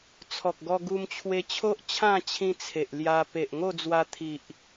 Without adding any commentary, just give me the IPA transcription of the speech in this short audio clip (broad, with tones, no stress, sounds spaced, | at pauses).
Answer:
t͡sʰ ɔ˨ k̚ ɡ ɔ˧ ɡ u˧ m t͡ɕʰ w e˧ t͡ɕʰ o˦ ʔ t͡ɕʰ ã˥˧ t͡ɕʰ ĩ˧ t͡sʰ e˨ ʔ l j a˧ p e˨ ʔ ŋ o˥˧ d͡z w a˧ t̪ʰ i˨ ʔ